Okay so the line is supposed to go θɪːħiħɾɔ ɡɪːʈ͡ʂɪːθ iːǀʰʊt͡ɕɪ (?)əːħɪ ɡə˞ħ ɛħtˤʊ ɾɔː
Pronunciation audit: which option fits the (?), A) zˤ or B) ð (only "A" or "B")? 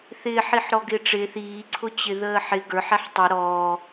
B